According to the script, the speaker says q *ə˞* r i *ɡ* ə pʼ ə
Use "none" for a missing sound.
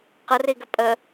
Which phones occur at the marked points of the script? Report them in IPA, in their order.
ə, ɡ

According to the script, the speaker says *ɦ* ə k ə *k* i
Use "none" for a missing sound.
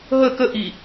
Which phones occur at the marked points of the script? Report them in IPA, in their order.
ɦ, ʔ

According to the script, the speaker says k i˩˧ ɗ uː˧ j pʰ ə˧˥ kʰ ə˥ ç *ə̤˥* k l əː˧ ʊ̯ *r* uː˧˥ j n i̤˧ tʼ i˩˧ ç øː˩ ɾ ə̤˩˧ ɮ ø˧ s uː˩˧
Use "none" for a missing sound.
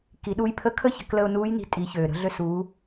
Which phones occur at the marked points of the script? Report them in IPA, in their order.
ə̤˩˧, n

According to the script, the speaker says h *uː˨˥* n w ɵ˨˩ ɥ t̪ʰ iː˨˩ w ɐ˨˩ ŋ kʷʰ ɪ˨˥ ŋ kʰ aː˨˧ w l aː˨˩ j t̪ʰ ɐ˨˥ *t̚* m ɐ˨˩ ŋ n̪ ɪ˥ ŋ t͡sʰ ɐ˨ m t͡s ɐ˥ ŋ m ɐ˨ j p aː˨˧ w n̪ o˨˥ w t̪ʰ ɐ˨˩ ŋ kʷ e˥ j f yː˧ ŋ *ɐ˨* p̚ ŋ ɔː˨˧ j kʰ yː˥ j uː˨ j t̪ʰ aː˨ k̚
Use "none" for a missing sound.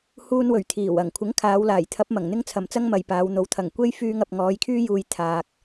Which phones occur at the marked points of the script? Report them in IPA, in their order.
uː˧, p̚, ɐ˨

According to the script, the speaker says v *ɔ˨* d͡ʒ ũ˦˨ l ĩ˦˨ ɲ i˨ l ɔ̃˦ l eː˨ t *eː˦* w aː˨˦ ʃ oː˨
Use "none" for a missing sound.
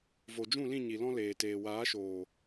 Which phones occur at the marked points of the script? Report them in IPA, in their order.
o˨, eː˨

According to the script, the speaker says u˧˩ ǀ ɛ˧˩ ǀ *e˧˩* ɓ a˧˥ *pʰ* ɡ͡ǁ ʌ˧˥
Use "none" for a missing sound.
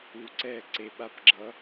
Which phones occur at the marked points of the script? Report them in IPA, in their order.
e˧˩, p

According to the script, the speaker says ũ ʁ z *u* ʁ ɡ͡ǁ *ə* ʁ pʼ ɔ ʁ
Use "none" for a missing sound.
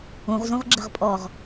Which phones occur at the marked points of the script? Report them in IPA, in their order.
ũ, ə

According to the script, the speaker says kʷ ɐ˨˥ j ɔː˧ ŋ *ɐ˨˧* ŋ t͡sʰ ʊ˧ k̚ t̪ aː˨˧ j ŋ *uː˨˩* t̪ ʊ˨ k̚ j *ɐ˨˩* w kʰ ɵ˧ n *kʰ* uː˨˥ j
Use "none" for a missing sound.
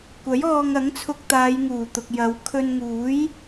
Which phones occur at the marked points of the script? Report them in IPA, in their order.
ɐ˨˥, uː˨˩, ɐ˨˧, ŋ

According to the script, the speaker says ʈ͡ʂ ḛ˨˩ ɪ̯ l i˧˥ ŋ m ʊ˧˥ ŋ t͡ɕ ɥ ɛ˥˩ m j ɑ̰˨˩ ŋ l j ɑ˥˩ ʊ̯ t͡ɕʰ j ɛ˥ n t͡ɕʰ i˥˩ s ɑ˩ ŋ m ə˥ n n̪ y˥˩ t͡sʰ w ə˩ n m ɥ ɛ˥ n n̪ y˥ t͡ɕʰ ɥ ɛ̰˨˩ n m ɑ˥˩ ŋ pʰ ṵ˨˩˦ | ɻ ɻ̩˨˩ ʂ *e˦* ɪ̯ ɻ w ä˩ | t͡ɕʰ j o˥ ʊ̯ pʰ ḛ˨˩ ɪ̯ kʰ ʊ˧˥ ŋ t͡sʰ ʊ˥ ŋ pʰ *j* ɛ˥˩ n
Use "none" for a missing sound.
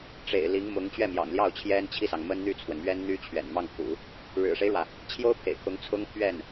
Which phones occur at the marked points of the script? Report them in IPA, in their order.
e˦, ɥ

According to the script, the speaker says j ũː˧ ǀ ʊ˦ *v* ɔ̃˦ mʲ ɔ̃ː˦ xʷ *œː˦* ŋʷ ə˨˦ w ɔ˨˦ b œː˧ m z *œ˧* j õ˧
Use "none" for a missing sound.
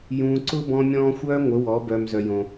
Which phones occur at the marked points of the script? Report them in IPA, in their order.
b, œː˦, œ˧

